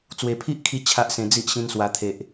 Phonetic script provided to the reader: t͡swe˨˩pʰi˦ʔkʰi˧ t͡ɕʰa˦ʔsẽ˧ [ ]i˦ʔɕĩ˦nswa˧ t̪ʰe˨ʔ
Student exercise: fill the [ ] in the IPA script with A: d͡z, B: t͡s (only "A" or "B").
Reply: A